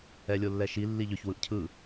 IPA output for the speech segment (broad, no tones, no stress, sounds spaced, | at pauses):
ɛ lʲ o lː ɛ ʃ i lː i ʎ ʏ ç w ɯ ʔ cʰ ɯ